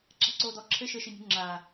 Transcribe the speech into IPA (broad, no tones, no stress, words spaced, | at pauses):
ǁa̤ǀoːdɔ ǁʰɘ ʃɘ ʃinʲṳŋ͡ǁaː